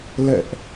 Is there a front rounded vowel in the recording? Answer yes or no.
no